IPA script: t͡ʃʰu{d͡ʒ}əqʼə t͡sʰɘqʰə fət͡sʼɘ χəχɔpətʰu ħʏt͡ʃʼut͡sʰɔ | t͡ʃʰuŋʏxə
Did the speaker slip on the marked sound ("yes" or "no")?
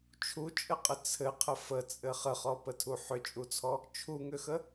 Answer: yes